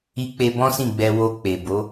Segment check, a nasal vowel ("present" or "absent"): present